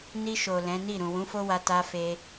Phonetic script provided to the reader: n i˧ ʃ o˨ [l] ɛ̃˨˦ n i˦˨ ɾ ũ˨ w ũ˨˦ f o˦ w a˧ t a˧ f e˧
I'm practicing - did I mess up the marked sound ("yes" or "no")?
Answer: no